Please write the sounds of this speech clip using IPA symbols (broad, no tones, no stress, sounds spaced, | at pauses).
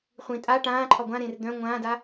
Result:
χʷ ĩ tʼ a ʈ ãː ǃʰ ɒ ɡʷ ã ɾ ẽː r d̪ œ̃ ŋʷ ãː d a